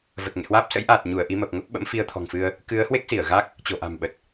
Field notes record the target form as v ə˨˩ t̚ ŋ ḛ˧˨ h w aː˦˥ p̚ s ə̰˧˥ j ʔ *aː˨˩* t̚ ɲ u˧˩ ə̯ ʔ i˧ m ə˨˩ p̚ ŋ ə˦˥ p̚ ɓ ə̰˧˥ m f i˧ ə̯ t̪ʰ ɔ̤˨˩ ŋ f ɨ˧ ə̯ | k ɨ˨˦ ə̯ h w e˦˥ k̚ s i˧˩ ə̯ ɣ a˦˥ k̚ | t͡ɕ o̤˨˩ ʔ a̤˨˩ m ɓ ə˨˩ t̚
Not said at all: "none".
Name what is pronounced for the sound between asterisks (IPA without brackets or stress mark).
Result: aː˨˩